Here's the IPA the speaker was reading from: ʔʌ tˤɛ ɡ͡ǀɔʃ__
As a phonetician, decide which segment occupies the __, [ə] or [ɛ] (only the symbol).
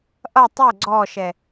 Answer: ɛ